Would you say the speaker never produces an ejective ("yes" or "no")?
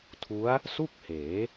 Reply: yes